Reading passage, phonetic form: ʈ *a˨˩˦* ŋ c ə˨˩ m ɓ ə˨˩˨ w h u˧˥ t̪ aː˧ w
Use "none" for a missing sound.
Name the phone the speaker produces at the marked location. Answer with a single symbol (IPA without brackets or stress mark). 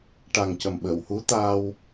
a˨˩